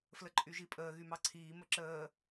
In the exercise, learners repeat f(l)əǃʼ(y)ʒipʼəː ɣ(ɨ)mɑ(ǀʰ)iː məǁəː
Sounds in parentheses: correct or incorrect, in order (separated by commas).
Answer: correct, correct, incorrect, correct